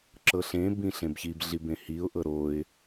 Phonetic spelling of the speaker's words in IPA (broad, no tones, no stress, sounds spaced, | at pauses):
ǁ ɤ ɬ ẽ b ĩ ɬ ẽ b ç i b ɮ i b ẽ h i ʊ̯ ʔ ɤ ɾ o ɪ̯